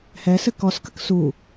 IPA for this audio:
h ɛ s ɘ k ɔ s k ə k s u

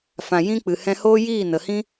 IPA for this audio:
f ã˨ j ĩ˦ k͡p ɨ˨ h ɛ̃˧ h oː˦ j iː˦˨ n ə˨ h ĩ˦

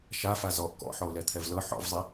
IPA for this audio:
ʃ a f a z ɔ ʔ k ɔ̰ ħ ɔ ʊ̯ l ɛ t̪ʰ ɛ v l ɤ ħ ɔ̰ v zˤ i

